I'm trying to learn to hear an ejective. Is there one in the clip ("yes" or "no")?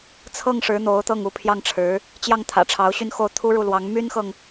no